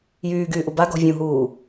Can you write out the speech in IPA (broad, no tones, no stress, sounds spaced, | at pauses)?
j yː ɡ yː ʔ u b a ɡ ɔ̤ vʲ ũ ɦ uː